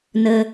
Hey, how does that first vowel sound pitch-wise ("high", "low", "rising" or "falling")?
high